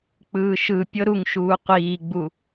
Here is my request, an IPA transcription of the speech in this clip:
k͡p ɯː ʃ ɯ pʲ ɤ ɾ u ŋ ʃ uː qʷ iː ɡ͡b u

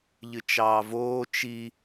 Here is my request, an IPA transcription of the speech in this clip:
ʎ ɨ t͡ʃ ɑː v oː t͡ʃ i

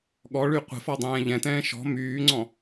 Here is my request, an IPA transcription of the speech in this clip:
ɠ ɔ ɭ y qʷ ə̤ f ɔ dˤ ɛ̃ː ʎ ɛ̃ t ɛ̃ː ʃ ɔ̤ m yː ŋ͡ǀ ɔ̃

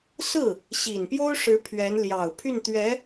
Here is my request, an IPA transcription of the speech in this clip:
s ɹ̩˥˩ | ɕ i˨˩ n p j o˥ ʊ̯ ʂ ɻ̩˧˥ pʰ ɥ ɛ˧˥ n l j ɑ˨˩ ʊ̯ pʰ y˥˩ n t̪ ɥ ɛ˧˥

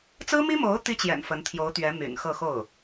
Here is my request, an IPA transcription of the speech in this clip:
t͡s ɹ̩˥ m i˥ m o˧˥ ʊ̯ t̪ i˥ t͡ɕ j ɛ̰˨˩ n f ə˧˥ n t̪ʰ j o˧˥ ʊ̯ t̪ ɥ ɛ˧˥ m y̰˨˩ n x ɤ˥˧ x o˥˩ ʊ̯

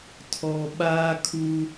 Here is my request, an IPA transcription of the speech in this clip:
tʰ ɔ˨ ɓ aː˦ kʰ uː˦

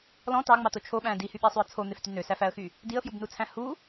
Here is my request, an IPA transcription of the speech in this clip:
l ɔ̃ t ɑ ŋ͡m ɑ t o t͡ʃʰ o ɓ æ̃ d i h y ɓ æ sˤ y ə̯ t͡sʰ o n̪ e f t y n ø s æ f æ ə̯ x y | d i ə̯ f j u b n u t͡sʰ æ̃ h u

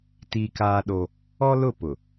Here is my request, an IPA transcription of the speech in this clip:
t i˦ k aː˦ ɗ o˦ | ɔ˦ l ʊ˦˨ p ʊ˨

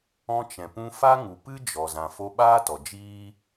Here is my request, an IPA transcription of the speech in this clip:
ɔ̃˧ t͡ʃ ɛ̃˨ p ũ˧ f a˦ ŋ u˨ p ɨ˦ d͡ʒ ɔ˨ z ã˨ f o˧ ɓ aː˦ t ɔ˨ d͡ʒ iː˦

